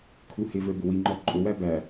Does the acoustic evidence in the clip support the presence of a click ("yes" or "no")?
yes